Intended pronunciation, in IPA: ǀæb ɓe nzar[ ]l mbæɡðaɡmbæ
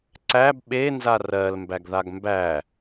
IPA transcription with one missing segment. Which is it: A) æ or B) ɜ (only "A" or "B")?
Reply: B